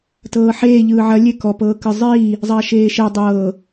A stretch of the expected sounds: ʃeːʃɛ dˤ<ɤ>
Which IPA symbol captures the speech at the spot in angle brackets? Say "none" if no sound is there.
ɤː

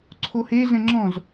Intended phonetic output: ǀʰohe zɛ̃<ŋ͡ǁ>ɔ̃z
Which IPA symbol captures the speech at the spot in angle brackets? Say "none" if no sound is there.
ŋ͡ǁ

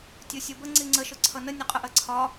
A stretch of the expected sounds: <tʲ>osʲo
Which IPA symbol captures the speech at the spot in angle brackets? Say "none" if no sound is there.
tʲ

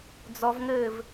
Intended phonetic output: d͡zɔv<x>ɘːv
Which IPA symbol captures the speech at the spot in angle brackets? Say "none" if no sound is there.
ŋ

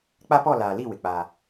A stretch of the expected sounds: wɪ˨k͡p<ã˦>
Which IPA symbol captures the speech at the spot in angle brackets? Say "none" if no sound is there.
a˦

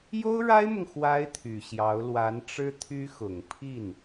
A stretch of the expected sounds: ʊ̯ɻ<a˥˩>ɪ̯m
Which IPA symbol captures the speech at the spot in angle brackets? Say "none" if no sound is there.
a˥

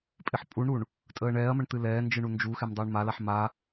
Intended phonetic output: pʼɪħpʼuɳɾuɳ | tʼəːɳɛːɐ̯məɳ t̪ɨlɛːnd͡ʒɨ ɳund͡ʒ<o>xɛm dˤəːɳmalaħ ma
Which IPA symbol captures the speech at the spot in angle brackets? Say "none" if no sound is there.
u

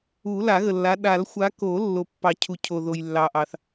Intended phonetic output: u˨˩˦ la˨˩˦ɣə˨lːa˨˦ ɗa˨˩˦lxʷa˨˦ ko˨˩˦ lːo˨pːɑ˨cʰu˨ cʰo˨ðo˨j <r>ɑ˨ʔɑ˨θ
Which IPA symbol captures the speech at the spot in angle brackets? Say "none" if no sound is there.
lː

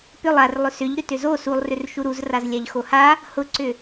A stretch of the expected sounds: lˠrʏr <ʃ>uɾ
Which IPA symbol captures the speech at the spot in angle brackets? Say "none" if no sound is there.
ʃ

